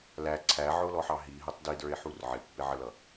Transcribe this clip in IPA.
læ ǀʰæʕʊlɔħɑ ɦiɦətˤ didə˞e̯ħur ʕɪpːɪʕəlʌ

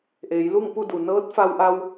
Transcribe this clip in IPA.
ʔeː˩˧jlu˥˨ŋpu˥˨du˩ nɤː˧˥t̚fa˧wʔa˧w

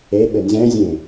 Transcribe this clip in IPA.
eɓɘ nzɛ̃zʲẽ

